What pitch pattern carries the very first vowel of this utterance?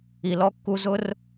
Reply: low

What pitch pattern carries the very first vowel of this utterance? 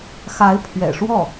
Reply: rising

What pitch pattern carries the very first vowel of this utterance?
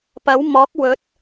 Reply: rising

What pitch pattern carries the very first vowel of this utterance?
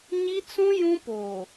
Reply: high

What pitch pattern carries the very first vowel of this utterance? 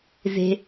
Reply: low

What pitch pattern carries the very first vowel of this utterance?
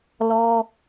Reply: high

